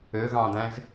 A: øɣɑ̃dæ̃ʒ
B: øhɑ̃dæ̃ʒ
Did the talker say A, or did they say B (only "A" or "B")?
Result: A